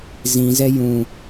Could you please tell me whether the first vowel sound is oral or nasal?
nasal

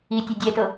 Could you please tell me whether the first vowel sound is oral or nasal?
oral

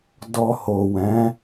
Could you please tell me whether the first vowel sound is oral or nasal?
oral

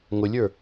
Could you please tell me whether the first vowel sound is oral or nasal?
oral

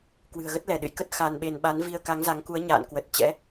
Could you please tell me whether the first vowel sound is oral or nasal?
oral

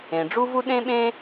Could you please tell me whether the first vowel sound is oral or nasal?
nasal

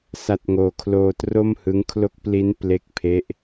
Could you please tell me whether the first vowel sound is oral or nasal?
oral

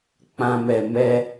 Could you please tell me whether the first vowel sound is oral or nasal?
nasal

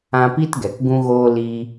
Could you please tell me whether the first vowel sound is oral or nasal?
nasal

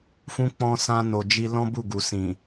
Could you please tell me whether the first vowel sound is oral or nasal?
nasal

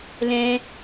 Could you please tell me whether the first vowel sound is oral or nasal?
nasal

